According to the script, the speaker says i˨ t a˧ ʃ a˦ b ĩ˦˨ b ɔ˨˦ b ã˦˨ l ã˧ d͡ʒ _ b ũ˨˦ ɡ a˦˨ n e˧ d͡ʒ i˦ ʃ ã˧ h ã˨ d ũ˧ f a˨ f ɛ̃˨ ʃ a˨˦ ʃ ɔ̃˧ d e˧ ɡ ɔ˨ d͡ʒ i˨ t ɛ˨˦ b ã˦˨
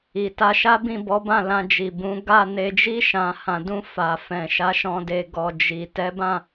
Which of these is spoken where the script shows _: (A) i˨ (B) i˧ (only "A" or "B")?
A